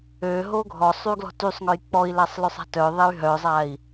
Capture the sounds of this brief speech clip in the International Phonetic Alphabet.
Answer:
ø ɦoɡʱɔsˤ yɡlɔ̤tysˤŋœj k͡pɔi̯lasˤlœsˤ a̤tœ ðˤey̯ɦœzˤai̯

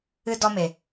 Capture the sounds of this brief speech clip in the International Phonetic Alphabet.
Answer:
ɨ˧dɔ˧me˨

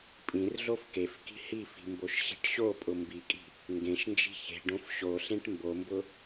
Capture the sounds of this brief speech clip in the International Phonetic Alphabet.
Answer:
pʼĩrɮof kefki̤ hifi̤ mboʃɕi̤ʈɕopʼʊ mbikʼi̤ | ŋɡẽʃnd͡ʒi̤ çe̤ɖõf ɕoɬẽʈ mbombʊ

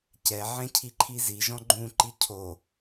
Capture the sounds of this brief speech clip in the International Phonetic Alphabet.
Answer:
cɛʕɛ̃cʰiǃʰi ziʒɔ̃ ɡ͡ǃũǃi cʰo

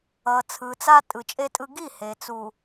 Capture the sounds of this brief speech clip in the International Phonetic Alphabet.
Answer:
ʌ˨ t͡sʰɯ˨t͡sa˦ tʼɯ˨t͡ʃʼe˦tʼɯ˦ ɡi˦˨ he˨t͡su˨

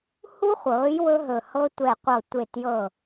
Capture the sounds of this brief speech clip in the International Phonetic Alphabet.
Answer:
hu˥χʷɤː˩˥j wɵ˥ɦɵ˧˩ hɤ˥ tʷɛ˧˩qʷɤ˧˩ tʷe˧˩tjɤ˧˩

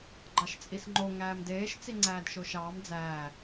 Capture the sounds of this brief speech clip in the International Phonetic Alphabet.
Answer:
ɡ͡ǃɑʃt͡sʼisŋ͡ǃo ŋæːmdeːʃ t͡siŋ͡ǀæːdʃoʃɑːm d͡zæː

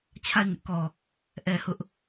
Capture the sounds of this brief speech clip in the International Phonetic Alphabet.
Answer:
t͡ɕʰa˦˨ɪ̯ ŋɪ˦ʔkɔ˨ | ʔɛ˨ hʊ˦ʔ

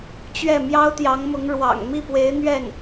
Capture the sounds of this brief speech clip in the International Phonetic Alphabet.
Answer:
t͡ɕɥɛ˥˩ mjɑ˥ʊ̯t̪jɑ˧˥ŋmʊ˧˥ŋ ɻwɑ̰˨˩ŋ mi˥˩pwe˧˥ɪ̯ n̪ɥɛ˥˩n

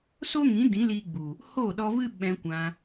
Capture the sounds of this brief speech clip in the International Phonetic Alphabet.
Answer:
so˦ŋĩ˨˦ dĩ˨˦liː˧ɡ͡bu˨ | ho˦˨ɗɔ˧vɨ˦ ɓɛ̃˧kʷã˧

